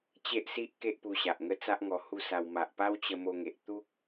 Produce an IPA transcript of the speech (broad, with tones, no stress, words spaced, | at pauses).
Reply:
t͡ɕe˦ʔsi˦ʔ ke˦ʔpu˧ɕa˨ʔŋə˥˧ t͡sa˦ʔŋɔ˧ hu˥˧sa˧w ma˨ʔpa˦wt͡ɕə˧ mo˧ŋe˨ʔ t̪u˦k̚